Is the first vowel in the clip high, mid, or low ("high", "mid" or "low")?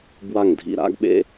low